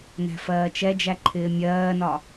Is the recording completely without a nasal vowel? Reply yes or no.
yes